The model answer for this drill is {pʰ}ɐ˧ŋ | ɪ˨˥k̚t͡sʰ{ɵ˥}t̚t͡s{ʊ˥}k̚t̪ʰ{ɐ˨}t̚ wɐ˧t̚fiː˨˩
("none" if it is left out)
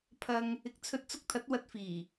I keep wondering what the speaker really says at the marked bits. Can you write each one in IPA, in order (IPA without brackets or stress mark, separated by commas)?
pʰ, ɵ˧, ʊ˧, ɐ˨˥